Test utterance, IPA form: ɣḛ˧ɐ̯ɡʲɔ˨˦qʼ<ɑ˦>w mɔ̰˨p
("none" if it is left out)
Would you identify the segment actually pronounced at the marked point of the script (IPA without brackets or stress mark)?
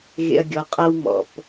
a˦